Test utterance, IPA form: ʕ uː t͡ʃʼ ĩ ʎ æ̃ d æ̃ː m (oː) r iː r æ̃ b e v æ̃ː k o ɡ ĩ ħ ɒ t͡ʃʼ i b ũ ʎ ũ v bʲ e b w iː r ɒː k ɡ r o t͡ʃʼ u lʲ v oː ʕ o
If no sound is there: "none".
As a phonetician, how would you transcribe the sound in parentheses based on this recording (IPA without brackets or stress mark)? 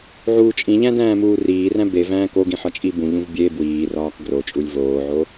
uː